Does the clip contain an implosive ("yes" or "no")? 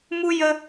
no